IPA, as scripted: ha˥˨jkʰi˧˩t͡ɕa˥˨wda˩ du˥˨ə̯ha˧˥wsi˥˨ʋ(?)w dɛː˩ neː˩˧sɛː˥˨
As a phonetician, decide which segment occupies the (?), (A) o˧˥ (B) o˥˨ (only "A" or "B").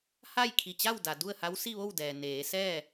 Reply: B